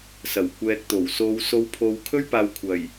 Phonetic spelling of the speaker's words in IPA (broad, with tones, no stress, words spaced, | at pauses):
sɐ˨˩wkʷɛː˨k̚t̪o˨˩wso˨˧w so˨˧wpʰo˨w kʰɵ˥ɥpaː˨˧w kʷʰɐ˨˩j